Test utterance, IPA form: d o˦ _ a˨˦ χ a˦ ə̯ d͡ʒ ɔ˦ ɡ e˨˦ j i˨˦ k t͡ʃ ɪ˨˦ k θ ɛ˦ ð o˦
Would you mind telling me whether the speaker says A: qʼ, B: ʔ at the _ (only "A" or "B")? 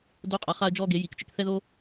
A